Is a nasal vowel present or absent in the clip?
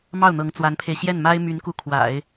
absent